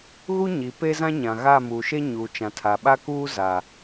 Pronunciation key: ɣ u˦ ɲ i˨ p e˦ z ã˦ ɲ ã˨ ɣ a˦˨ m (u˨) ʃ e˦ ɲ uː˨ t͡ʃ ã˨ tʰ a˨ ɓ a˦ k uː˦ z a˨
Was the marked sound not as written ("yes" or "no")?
yes